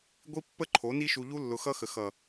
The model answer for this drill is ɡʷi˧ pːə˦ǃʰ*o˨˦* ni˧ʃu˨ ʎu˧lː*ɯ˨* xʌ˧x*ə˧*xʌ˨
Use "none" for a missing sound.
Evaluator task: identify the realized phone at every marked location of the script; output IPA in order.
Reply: o˨˦, ʊ˨, ə˨

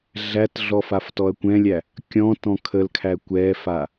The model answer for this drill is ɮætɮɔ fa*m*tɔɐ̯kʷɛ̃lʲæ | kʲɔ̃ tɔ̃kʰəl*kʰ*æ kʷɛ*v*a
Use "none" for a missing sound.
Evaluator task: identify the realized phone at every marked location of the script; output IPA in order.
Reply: f, kʰ, f

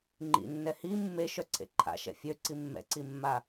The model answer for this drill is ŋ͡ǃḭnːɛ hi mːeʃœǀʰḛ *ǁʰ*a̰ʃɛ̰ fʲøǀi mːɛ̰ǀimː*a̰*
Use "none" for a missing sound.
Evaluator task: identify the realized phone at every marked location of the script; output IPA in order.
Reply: ǃʰ, a

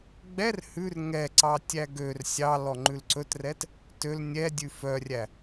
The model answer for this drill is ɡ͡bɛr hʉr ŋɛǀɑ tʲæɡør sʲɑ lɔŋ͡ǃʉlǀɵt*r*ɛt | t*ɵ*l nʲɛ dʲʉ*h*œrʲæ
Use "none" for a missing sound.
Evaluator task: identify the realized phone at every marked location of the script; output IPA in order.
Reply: r, ø, f

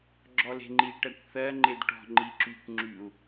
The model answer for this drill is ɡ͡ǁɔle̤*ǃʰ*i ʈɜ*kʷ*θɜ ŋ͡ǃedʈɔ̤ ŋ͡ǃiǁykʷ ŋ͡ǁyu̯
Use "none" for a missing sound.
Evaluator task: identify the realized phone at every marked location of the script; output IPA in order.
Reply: ŋ͡ǃ, kʷ

